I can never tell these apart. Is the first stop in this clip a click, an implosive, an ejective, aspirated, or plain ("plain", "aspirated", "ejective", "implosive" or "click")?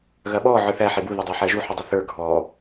implosive